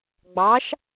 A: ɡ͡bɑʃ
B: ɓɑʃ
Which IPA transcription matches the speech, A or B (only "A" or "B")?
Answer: A